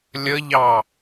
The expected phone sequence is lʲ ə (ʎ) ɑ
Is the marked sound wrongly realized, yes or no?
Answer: no